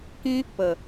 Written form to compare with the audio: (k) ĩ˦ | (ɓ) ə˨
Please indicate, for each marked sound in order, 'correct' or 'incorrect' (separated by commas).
correct, incorrect